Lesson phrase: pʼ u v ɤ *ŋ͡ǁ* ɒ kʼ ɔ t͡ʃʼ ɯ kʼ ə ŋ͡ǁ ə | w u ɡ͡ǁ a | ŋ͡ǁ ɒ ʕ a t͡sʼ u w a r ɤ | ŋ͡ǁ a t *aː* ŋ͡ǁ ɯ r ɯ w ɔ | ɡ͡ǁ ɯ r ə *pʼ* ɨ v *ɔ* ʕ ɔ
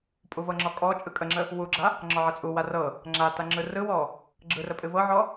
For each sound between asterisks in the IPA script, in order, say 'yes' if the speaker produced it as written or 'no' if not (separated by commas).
yes, no, yes, no